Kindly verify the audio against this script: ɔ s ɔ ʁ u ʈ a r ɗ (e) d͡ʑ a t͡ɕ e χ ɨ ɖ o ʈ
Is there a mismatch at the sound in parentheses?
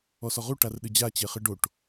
yes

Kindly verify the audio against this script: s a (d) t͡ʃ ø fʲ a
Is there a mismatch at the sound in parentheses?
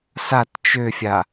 yes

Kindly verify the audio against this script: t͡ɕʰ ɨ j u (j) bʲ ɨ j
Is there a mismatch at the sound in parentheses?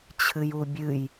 yes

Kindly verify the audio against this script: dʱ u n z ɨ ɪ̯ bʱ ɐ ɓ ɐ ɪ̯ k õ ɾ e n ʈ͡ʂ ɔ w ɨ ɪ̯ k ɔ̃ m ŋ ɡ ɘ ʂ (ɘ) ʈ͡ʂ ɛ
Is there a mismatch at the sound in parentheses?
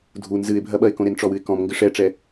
yes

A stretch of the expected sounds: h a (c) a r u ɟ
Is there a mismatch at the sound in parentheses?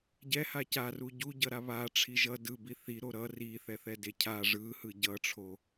no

